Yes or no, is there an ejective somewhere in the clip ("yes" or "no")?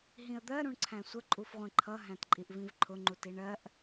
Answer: yes